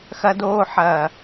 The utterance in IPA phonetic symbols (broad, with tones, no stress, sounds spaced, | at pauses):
x ɐ˧ d oː˧ ħ ɐː˨